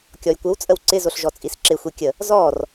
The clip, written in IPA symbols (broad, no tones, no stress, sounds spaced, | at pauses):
kʲ ɔ j kʷ ə w t͡sʼ ə w ǀ ɪ z o ɬ ʒ ɔ t͡sʼ i s ǁ ɪ xʷ i kʲ ə | z ɔ r